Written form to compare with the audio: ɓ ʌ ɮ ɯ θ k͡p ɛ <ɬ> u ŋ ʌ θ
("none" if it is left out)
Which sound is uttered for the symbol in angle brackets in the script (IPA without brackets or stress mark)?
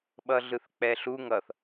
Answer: ɬ